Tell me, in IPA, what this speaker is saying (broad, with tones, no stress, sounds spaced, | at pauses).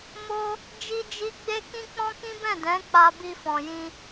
m o˦ | d͡ʒ i˦ d͡ʒ i˦ ɡ͡b e˦ k ĩ˦ k͡p ɔ̃˦ k ĩ˦ b ɛ̃˦˨ d ɛ̃˨˦ k͡p a˧ b i˧ f ɔ̃˨ j ĩ˧